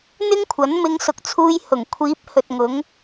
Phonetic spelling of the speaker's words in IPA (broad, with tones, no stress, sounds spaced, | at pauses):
n̪ ɪ˥ ŋ kʷʰ ɐ˨˥ n m ɪ˧ ŋ s ʊ˨ k̚ t͡sʰ uː˧ j h ʊ˨˩ ŋ kʷʰ iː˨˥ p̚ h ɵ˨ t̚ ŋ ʊ˨˥ ŋ